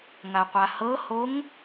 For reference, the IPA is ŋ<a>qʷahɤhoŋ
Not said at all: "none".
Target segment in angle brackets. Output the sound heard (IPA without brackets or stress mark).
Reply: a